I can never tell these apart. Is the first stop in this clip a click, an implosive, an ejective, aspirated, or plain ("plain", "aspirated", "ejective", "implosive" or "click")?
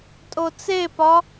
ejective